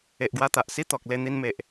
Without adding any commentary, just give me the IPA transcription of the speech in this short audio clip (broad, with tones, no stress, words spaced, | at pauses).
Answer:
e˨ʔɡwa˧t̪a˨ʔ si˦t̪ɔ˨k̚le˧ n̪i˧nme˨ʔ